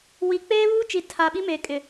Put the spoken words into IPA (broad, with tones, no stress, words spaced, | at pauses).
wi˨ k͡peː˦βuː˦t͡ʃi˨ tʰa˨ ɓi˦me˨ kʼɪ˨